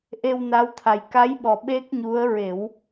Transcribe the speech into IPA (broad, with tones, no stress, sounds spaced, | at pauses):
ʔ e˧ w n a˧˥ w t̪ʰ a˨˩ j k a˧˥ j ɓ ɔ˨˩ ɓ e˦˥ k̚ ɲ u˧˥ ə̯ ɹ e˨˩˦ w